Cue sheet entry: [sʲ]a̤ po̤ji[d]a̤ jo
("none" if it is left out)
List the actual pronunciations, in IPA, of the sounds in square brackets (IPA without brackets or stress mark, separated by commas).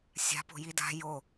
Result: sʲ, d